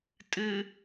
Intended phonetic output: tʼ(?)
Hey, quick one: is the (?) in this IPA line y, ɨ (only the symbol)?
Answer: ɨ